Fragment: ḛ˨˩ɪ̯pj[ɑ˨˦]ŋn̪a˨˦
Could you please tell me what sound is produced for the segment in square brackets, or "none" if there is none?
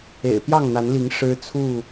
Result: ɑ˥˨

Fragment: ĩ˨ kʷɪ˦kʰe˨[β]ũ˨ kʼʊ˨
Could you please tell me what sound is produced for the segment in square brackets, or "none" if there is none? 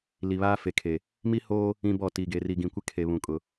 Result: β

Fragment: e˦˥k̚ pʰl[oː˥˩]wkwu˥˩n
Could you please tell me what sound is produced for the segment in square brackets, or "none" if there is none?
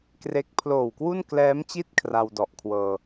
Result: oː˨˩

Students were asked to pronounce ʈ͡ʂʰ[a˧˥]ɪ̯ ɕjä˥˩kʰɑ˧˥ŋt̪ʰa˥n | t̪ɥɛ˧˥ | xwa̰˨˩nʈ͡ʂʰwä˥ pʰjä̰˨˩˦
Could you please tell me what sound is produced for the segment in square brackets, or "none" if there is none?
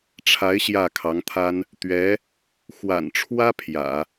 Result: a˧˥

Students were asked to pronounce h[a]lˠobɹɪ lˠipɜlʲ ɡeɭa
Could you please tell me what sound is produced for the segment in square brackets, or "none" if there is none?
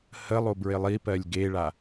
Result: ə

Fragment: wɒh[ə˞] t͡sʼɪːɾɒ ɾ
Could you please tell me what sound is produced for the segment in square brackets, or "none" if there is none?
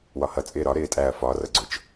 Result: ʌ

